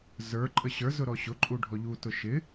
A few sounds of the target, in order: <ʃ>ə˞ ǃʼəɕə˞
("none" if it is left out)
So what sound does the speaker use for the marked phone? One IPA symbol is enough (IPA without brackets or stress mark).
z